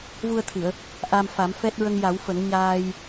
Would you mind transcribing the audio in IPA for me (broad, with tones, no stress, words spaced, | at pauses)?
vu˧ə̯t̪ʰɨ˨˩˨ə̯ | ʔa˧mfa˨˩˦mfɛ˦˥t̚ ɹə˧ŋja˨˩˦wfə˨˩˦ŋ ɲaː˧j